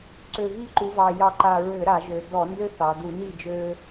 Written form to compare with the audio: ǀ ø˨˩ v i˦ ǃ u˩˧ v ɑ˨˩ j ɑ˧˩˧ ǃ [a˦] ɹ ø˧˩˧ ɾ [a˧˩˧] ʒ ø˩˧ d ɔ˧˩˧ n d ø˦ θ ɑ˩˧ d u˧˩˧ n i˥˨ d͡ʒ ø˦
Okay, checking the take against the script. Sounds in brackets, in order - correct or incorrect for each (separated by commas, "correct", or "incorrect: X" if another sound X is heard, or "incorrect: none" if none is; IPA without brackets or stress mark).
incorrect: a˨˩, correct